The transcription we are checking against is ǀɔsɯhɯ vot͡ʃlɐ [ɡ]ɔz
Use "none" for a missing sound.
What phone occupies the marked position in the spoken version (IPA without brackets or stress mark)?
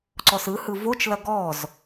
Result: ɡ